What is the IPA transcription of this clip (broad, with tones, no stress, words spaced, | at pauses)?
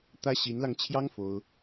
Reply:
t̪ä˥ ɕi˧˥nlɑ˧ŋt͡ɕʰjɑ˥ŋ fo˥ʊ̯